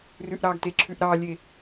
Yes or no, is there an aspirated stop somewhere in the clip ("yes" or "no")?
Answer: yes